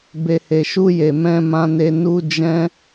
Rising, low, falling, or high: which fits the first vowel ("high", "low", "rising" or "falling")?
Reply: low